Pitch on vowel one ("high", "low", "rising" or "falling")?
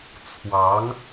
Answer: rising